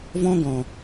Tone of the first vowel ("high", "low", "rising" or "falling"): high